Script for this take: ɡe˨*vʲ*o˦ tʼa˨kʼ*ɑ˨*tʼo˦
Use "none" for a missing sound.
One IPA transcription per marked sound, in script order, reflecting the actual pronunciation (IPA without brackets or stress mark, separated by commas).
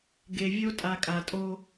vʲ, a˨